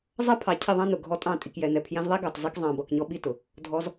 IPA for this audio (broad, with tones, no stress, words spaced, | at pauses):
zˤʌ˦pʰɑ˨ cʰɪ˦˨ðˤɑ̃˦nʊ˨ ɡʱɔ˧tʼɑ̃˦˨ tʼi˨kjɛ˨nɛ˨ pʰjɛ̃˧zðˤɛ˦ɡɑ˨t zˤi˧kzˤɑ̃˨bʌ˨kɲɔ˧ ɓi˦tʊ˨ | dʱɔ˧z